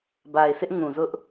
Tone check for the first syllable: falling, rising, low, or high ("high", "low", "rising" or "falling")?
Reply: low